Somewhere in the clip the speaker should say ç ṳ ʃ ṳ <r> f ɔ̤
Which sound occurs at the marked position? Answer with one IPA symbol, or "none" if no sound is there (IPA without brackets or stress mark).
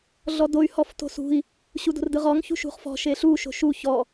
χ